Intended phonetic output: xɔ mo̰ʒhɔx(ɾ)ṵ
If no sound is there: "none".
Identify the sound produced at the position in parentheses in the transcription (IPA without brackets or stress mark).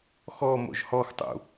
tˤ